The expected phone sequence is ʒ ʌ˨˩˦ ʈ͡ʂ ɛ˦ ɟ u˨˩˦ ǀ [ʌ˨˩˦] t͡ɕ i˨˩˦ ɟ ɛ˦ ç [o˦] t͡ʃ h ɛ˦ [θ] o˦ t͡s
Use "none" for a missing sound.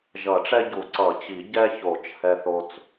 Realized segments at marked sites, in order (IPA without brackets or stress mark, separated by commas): ʌ˨˩˦, o˨˩˦, θ